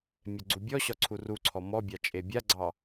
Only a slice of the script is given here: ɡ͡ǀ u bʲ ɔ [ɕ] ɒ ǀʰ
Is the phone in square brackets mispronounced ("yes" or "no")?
no